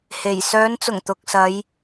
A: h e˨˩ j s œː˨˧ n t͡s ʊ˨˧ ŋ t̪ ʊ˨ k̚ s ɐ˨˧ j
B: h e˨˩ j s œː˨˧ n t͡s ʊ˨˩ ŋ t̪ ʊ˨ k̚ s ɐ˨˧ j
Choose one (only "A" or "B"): B